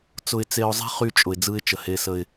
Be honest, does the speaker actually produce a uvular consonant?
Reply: yes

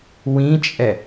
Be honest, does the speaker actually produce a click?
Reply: no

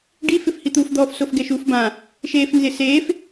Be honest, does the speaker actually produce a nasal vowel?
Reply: yes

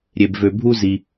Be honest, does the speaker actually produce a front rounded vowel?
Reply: yes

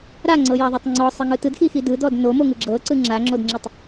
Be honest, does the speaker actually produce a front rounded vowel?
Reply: no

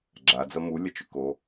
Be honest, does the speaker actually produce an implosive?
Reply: no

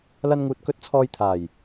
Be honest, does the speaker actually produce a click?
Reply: no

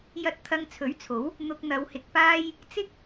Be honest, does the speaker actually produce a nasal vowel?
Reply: no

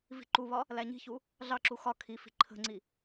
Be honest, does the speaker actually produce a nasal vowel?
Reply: no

